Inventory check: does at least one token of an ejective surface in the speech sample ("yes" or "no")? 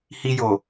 no